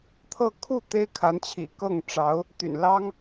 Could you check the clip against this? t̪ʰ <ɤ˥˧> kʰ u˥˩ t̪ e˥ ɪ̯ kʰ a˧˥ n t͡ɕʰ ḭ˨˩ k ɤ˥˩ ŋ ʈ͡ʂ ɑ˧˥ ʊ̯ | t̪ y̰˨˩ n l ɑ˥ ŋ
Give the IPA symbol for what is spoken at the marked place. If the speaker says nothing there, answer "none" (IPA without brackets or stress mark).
ɤ˥˧